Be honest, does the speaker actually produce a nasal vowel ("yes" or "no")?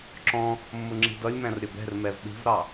yes